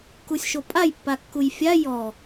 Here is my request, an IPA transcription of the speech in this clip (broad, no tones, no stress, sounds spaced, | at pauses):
k u sʲ ʃ o pʼ a j pː a kː u j fʲ a j ɔ